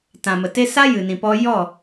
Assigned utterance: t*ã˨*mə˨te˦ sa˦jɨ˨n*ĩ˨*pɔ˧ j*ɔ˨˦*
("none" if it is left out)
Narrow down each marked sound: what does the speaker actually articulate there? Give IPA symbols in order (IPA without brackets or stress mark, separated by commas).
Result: ã˨, ĩ˨, ɔ˦˨